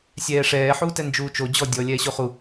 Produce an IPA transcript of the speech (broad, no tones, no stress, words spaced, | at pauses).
sʲɛːʂɛː ħuːtɛnd͡ʒuːt͡ʃo d͡ʑɔ dʲɔ lʲɛːɕoχu